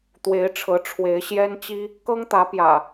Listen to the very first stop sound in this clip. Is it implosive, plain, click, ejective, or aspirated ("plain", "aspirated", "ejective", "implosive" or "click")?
plain